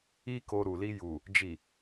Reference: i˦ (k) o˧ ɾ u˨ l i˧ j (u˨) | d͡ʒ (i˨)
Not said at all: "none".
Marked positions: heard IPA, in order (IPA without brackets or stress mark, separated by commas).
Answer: k, u˨, i˨